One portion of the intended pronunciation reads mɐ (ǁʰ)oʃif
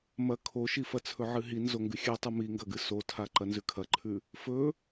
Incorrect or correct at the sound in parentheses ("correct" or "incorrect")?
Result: incorrect